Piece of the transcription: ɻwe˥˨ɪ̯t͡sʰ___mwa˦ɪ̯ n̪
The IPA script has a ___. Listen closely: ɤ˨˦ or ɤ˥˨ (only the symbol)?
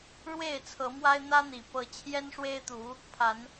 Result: ɤ˨˦